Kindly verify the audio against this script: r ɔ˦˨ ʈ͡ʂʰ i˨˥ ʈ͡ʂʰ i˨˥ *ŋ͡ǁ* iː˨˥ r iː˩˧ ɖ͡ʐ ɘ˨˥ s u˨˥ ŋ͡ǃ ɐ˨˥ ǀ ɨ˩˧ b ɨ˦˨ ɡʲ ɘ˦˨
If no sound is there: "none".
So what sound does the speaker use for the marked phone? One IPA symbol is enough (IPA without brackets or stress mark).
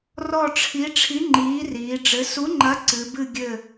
ŋ͡ǃ